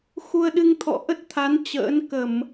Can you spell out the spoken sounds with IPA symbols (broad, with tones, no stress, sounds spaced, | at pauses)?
x u˧ ə̯ ɗ ɨ˧ ŋ t̪ʰ ɔ̰˧˨ ʔ ə˦˥ t̚ t̪ʰ a˨˦ n t͡ɕ ə̰ː˧˥ n k ə˧˩˨ m